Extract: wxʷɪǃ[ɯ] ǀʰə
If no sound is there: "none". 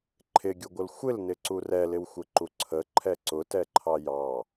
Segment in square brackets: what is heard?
u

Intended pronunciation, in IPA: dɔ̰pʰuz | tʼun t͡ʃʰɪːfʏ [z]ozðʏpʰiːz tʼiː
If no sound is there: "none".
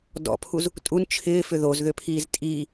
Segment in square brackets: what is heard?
ð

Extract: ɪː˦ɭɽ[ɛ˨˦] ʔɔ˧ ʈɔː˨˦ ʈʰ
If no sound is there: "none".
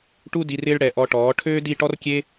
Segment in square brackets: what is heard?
ɛ˨˦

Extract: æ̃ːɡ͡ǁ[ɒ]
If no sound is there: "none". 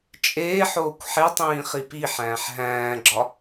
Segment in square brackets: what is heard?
ɒ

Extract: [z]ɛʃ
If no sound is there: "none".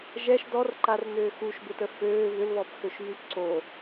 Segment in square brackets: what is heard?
ʒ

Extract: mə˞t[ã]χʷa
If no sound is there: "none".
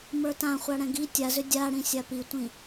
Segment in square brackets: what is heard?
ã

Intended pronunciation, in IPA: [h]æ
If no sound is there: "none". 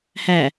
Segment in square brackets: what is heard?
h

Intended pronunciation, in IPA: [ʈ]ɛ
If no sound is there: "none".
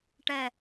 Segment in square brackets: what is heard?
ʈ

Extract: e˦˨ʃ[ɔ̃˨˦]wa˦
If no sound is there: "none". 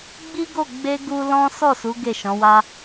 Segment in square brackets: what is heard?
ɔ̃˨˦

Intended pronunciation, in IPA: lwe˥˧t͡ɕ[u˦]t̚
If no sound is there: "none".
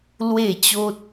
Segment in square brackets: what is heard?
o˦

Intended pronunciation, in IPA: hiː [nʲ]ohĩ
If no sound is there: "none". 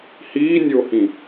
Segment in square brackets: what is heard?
nʲ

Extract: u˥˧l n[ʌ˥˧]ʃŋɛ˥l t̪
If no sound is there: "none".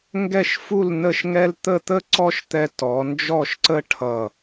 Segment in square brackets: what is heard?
ə˥˧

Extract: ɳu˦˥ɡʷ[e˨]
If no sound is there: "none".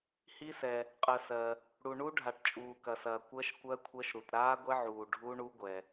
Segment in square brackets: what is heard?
ɛ˨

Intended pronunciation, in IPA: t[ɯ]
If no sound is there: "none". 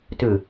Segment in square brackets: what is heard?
ɯ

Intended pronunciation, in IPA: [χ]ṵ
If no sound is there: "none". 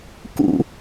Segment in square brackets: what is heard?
k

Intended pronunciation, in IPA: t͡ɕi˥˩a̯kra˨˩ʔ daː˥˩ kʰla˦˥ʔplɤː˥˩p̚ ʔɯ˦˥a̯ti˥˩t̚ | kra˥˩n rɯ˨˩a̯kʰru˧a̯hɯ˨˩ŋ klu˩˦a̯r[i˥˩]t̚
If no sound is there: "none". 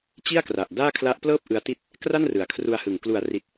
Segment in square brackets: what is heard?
i˨˩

